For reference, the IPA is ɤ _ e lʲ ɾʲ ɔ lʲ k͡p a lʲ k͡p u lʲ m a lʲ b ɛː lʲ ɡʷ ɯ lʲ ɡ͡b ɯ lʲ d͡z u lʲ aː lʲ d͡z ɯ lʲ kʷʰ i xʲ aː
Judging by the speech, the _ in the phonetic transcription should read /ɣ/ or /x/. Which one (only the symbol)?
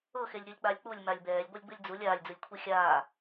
x